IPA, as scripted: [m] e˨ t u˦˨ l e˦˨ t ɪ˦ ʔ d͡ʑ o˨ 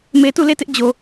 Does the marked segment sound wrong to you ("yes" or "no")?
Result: no